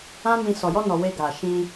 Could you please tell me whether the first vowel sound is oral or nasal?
nasal